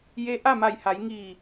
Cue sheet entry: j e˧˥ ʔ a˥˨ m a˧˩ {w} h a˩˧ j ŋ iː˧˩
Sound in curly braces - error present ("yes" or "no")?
yes